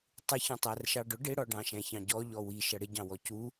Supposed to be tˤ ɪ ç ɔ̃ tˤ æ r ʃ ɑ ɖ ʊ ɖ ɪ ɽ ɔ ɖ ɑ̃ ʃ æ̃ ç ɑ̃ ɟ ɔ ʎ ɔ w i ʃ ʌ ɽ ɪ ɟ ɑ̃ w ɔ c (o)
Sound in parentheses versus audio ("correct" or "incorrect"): incorrect